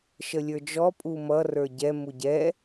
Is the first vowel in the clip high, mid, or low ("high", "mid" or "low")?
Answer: mid